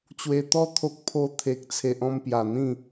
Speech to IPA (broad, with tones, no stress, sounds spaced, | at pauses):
t͡ɕ w e˧ t̪ ɔ˦ t̪ʰ o˦ k̚ pʰ o˥˧ t̪ʰ e˦ k̚ t͡sʰ e˦ ʔ ɔ̃˧ m p j a˨˩ n̪ ĩ˥˧